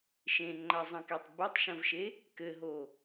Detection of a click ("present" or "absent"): present